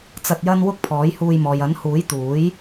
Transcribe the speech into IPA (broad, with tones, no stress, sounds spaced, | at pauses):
t͡s ɐ˧ t̚ j ɐ˥ n w ʊ˥ k̚ pʰ ɔː˨˥ j h uː˧ j m ɔː˨ j ɐ˨˥ n h uː˨˥ j t̪ uː˨˥ j